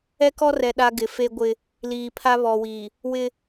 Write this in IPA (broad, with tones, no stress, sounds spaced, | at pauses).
ɛ˦ k ɔ˦ r ɛ˨ ɗ a˦ ɡ ɪ˨ f e˦ ɡʷ ɪ˦ | l iː˨ pʰ a˦ β ɔ˨ w i˨ | w ɪ˦